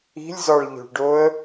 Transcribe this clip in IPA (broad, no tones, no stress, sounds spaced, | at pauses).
i̤ lʲ z ɒ ɭ ʎ o̤ ɭ ɖ o ə̯